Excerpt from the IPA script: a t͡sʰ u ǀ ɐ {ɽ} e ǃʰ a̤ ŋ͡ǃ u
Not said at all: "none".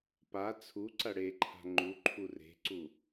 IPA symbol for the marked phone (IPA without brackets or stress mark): ɽ